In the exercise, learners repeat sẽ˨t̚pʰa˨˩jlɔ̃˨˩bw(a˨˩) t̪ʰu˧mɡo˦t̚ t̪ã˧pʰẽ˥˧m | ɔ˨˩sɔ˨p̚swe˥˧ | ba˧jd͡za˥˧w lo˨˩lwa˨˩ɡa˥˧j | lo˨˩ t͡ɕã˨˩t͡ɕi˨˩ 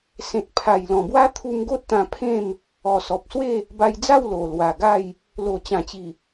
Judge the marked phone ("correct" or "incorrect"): incorrect